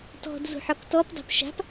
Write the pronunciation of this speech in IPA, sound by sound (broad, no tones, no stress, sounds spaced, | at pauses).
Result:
t ɔ̤ d z ṳ ħ ɒ k t ɔ p dˤ e̤ p ʃ a̤ p